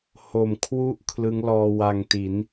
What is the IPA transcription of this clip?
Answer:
h o˨˩ m kʰ w u˥˩ ʔ kʰ l ɯ˦˥ ŋ l ɔː˧ w a˧ ŋ t i˩˦ n

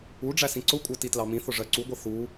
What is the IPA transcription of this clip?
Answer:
u ɖ͡ʐ æ s ĩ ǀ ʊ kʷʼ ɜ t i t l ɑ m ĩ θ ʊ ʐ ɜ ǀ u ɡʷ ʌ θ u

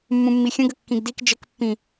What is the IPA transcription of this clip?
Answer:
mː ũ mː i xʲ ə̃ ɡ ə kː ĩ ɡ d i k d͡ʒ ə k pː ĩ

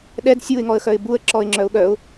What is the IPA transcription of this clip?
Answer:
ɗ ɛ d sʲ u ɪ̯ ŋ ɔ ə̯ x œ ɪ̯ b u ə̯ ǁ ɔ ɪ̯ ŋ͡ǁ œ ʊ̯ ɠ œ ʊ̯

